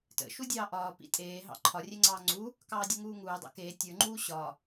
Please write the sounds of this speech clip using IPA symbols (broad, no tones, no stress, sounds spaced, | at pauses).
t ə̰ ʃ u dʲ ɑː ʔ ɒː p ḭ tʼ eː ɦ ɑ̰ ǃʰ ɒ rʲ e ŋ͡ǀ ɑː ŋ͡ǀ u | k ɑː dʲ ə ŋ uː ŋ uː dˤ ɑ̰ k eː tʲ ə˞ ŋ͡ǃ uː ɕ ɒ